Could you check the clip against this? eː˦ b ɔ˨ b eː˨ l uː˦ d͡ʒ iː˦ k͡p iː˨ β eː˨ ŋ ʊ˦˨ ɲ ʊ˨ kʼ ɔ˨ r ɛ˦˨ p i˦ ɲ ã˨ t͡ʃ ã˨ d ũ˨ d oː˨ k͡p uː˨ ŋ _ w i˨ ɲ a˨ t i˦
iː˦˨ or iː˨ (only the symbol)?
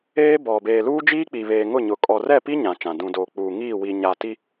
iː˦˨